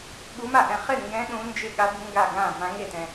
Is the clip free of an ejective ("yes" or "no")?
yes